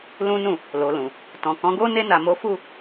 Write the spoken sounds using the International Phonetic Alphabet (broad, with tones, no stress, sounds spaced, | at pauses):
l ũ˦ n ũ˦˨ | l o˨ l ũ˨ | t ɔ̃˨ k ɔ̃˨˦ ɡ o˦ n e˧ n a˨ m o˨˦ f u˦˨